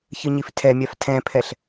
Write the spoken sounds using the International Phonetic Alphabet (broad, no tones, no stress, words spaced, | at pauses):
çɯɲiftʰɛmʲaf tʰɛ̃pʰɛɬ